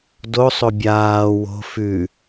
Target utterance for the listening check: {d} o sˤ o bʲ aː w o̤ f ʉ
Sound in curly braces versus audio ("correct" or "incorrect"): correct